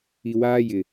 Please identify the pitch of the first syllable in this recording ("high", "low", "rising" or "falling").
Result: low